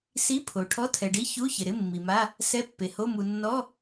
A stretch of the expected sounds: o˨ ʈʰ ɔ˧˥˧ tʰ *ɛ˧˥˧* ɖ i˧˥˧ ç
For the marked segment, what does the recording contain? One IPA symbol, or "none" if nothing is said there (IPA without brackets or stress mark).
ɛ˨